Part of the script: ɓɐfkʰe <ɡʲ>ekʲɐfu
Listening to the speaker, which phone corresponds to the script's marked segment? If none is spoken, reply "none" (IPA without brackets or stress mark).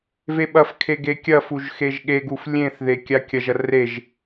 ɡ